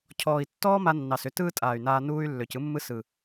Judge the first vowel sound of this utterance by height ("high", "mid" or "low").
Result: mid